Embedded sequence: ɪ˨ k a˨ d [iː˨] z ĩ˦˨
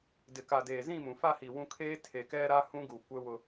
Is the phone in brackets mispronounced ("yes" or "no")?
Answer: yes